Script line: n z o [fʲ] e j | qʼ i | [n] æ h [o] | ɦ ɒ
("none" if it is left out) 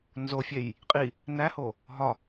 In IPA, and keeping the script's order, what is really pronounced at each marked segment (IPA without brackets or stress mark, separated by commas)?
fʲ, n, o